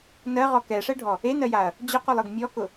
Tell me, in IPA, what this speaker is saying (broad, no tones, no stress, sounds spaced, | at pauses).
n ɜ ʁ ɔ k ɛ ʂ ɜ ɖʱ ɔ | e n ɜ j a ɐ̯ | d͡ʑ ʊ q o lˠ ɯ ɡ mʲ ɔ k ʊ